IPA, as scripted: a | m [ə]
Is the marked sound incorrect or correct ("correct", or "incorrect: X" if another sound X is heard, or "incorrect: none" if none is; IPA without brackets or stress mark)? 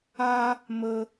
correct